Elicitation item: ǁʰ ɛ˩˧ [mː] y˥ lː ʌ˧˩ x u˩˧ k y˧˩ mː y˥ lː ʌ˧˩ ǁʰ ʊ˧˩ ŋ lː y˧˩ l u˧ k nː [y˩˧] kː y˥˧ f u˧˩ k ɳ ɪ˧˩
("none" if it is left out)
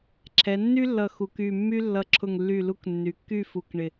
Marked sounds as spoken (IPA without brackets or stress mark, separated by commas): nː, y˩˧